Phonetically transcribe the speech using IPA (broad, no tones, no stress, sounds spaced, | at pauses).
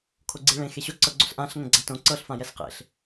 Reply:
kʰ o ɡ͡ǀ i ɭ ẽ x e ɕ o ǀ ɤ ɡ͡ǀ o̰ s ʔ ã ɬ ŋ ɛ̃ ɡ͡ǀ a t õ ǀ ɤ ɬ f ã j ɛ s q ḛ ɬ